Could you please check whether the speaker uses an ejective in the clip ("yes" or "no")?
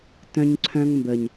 no